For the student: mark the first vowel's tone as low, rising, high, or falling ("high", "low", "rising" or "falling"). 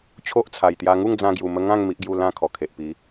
high